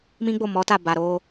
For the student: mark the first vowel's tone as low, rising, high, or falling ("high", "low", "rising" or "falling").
high